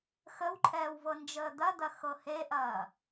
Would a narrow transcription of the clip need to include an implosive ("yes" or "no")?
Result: no